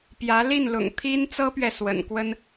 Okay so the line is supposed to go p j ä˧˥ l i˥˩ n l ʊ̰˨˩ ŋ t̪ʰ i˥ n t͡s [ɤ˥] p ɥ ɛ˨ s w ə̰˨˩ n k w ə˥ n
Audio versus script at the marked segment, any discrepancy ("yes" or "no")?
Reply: no